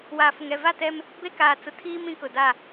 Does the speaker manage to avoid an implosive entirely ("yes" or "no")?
yes